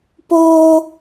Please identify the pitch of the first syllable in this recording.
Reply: high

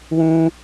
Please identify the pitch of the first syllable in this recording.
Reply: high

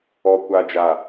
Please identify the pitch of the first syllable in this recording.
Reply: low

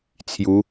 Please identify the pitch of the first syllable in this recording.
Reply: rising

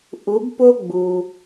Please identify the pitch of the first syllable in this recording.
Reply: rising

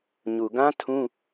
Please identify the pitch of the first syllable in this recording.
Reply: low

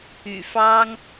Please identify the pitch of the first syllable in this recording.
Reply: low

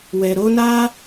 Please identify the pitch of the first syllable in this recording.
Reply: low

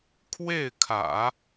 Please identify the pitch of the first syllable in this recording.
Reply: falling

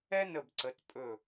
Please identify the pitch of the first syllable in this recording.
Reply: high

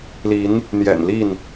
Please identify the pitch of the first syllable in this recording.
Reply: rising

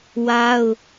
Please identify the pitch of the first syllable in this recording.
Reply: high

